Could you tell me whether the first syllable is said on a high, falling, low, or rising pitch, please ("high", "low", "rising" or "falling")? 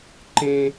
high